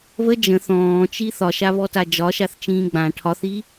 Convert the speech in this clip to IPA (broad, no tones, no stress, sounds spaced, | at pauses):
β ə d͡ʒ ə̃ θ ɔ̃ː t͡ʃ i θ ɒ ʃ a β ɔ t a d͡ʒ ɒ ʃ a θ t͡ʃ ĩː ɡ͡b ã ʈʰ ɒ θ i